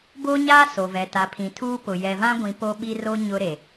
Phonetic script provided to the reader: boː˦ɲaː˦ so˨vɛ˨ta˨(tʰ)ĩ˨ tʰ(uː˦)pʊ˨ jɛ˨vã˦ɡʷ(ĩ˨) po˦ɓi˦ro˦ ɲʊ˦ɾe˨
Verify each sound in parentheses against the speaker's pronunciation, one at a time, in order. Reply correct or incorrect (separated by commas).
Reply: incorrect, correct, correct